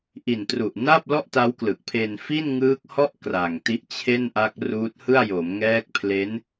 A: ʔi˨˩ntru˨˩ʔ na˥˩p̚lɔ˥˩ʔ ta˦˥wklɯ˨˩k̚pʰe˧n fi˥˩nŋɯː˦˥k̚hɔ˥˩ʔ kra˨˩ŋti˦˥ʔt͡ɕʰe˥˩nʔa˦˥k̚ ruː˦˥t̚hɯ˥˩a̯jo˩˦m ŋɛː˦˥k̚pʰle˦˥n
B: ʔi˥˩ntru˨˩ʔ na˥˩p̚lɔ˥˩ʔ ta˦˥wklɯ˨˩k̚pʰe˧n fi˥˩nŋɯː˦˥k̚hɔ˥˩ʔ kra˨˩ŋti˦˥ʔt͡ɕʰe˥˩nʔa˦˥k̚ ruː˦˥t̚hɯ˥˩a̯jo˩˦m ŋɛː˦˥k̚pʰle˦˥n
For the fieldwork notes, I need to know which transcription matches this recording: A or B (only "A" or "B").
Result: A